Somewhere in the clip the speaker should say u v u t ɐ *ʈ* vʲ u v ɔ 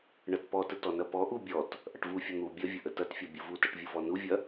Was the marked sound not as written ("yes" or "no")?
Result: no